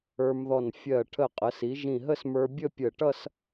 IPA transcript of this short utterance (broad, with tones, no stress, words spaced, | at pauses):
ə˞˧mðɔ˧˩n fʲɜ˧˩ ʈʰə˧˩qʼə˩˧si˩˧ ʒĩ˧˩ɦə˥˧smə˞˧bʲə˥˧ pʲə˧˩ʈʌ˥˧s